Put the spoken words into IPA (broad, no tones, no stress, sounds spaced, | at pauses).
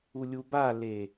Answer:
u lʲ u b a l e